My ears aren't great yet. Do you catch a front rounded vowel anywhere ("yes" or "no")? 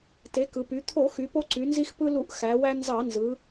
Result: yes